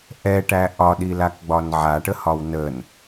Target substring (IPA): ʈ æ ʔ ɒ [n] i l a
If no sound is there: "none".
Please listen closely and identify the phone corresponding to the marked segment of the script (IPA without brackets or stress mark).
ɗ